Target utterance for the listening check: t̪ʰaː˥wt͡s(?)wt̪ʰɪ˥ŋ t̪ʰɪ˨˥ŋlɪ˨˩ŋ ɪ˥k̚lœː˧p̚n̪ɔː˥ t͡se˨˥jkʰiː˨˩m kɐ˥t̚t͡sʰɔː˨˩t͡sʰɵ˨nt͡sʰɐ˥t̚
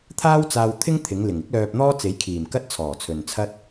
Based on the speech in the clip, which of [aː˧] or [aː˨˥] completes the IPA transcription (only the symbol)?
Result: aː˧